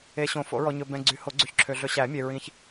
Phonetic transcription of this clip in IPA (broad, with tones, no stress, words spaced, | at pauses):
e˨ɕõ˨˩˦ fo̰˨˩˦ɹɔ˨ɲɵ˨ bɛ̃˨ ɡ͡ǀy˨˩˦ho˨˩˦ɡ͡ǀy˨çǁʰø˨ ɮɵ˨ɕæ˨˩˦mʲe˨ ɹĩ˨ç